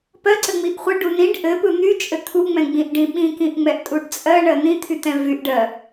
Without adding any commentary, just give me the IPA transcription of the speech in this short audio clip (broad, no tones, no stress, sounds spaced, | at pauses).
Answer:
p ɜ ǀ ɘ ŋ͡m i ʔ χʷ ɘ ɖ u n ĩ ɖ ʔ ɘ p ɯ n̪ y t͡ʃʼ ɘ t̪ʰ u ŋ͡m ɛ̃ ɡ͡b ĩ ʔ ɖ ĩ ɓ ĩ k ĩ ʔ ŋ͡m ɛ ʔ tʼ u ɖ t͡sʼ ɜ ɳ ɜ n̪ ĩ t̪ʰ y t̪ ɛ̃ v y ʔ ɖ ɜ